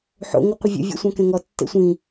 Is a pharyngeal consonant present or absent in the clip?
present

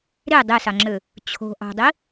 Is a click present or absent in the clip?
present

